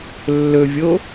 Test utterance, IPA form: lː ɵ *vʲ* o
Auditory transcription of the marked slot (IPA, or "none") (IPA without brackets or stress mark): vʲ